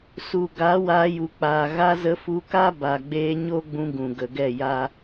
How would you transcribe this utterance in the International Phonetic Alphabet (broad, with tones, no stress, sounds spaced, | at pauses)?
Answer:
s u˨ ɡ a˨˦ w aː˧ j u˨ k͡p aː˨ ɣ a˧ z ə˧ f u˧ k a˦ b a˨ ɡ͡b eː˧ ɲ o˦ ɡ͡b ũ˧ ɡ ũ˨ ɡ ə˨ ɡ ɛ˦˨ j a˦